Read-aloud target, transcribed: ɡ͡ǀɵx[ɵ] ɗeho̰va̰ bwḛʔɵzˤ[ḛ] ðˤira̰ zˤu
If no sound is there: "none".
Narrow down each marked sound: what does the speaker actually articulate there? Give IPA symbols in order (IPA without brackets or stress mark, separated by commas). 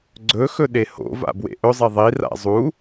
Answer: ɵ, e